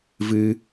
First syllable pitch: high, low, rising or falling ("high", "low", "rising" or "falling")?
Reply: high